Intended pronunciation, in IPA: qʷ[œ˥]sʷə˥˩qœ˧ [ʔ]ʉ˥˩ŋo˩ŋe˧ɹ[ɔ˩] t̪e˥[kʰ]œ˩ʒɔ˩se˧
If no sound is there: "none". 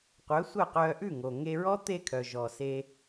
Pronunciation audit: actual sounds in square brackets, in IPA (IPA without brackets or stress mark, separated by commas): œ˩˥, ʔ, ɔ˥, kʰ